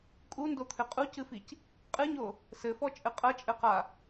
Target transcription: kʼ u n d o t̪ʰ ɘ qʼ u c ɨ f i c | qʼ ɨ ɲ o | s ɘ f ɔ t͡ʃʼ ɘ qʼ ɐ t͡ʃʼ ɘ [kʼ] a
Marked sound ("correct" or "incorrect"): incorrect